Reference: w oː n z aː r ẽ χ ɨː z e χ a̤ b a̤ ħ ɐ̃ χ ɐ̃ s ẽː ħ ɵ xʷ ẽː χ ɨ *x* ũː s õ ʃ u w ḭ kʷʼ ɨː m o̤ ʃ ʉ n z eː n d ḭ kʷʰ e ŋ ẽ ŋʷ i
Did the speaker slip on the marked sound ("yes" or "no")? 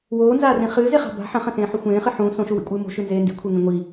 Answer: yes